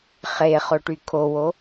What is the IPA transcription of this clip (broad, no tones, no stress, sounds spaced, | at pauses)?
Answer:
χ e χ o ʈ y kʰ o w o